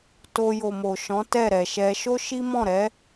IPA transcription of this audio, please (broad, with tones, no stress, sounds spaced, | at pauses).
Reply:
t o˧ j o˨ m o˨ ʃ ɔ̃˨˦ t ɛ˦˨ ɾ ɛ˨ ʃ ɛ˧ ʃ o˦ ʃ i˦ m ɔ̃˦˨ ɾ ɛ˨˦